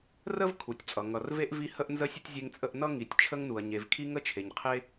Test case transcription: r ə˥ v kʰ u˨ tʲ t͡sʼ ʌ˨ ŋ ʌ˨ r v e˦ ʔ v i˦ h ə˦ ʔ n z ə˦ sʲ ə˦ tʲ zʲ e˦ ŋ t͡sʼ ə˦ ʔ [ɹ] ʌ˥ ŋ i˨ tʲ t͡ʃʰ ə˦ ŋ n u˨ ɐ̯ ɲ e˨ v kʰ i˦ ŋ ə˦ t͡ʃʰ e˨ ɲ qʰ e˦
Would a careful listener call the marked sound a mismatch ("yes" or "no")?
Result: yes